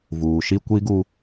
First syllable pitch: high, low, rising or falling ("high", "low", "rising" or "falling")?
low